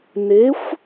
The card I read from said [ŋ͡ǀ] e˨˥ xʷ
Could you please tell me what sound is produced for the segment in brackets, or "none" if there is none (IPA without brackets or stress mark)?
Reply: n